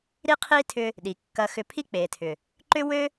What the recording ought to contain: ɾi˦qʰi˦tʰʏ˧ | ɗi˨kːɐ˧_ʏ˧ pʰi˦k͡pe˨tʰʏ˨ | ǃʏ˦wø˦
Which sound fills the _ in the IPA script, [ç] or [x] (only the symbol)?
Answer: x